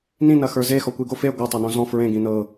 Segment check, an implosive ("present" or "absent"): absent